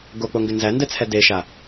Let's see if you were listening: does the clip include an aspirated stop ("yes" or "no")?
yes